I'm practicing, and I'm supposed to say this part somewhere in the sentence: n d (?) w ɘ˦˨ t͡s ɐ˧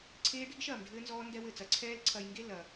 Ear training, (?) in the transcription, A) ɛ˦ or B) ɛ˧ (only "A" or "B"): A